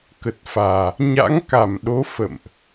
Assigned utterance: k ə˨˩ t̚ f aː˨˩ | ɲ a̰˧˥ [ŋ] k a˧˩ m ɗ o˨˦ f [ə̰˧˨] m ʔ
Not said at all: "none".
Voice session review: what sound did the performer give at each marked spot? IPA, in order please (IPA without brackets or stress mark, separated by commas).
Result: ŋ, ə̰˧˨